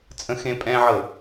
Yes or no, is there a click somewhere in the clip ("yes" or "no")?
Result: no